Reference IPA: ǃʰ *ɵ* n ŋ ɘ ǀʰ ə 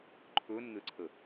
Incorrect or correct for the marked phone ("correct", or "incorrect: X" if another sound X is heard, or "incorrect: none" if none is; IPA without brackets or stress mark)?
correct